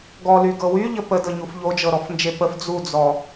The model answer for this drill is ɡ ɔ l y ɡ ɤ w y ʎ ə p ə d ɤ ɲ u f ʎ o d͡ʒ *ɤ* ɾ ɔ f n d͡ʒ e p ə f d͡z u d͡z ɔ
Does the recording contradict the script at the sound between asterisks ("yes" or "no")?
no